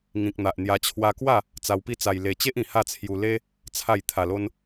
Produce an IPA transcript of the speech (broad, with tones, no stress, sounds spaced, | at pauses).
ŋ ĩ˨ k̚ n̪ a˨ ʔ n̪ j a˧ t͡ɕʰ w a˧ k w a˥˧ | t͡s a˧ w p i˦ t͡s a˧ j l e˧ t͡ɕ e˦ ʔ ĩ˨˩ h a˥˧ t͡sʰ j u˧ l e˦ | t͡sʰ a˥˧ j t̪ʰ a˨˩ l o˧ n